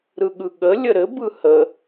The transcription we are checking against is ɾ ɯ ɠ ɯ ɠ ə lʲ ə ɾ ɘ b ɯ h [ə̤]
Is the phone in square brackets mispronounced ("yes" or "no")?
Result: yes